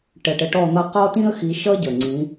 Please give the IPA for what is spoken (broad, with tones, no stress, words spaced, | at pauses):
ʈə˨˩ʈə˨˦ʈɔ˦˨n̪ʌ˦˨ qɔ˥tĩ˥ə̯xi˨˦ ʃʌ˥ɟə˨˩ŋ͡ǀĩ˨˦